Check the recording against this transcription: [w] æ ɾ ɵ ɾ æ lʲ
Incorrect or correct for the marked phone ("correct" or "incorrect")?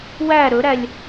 correct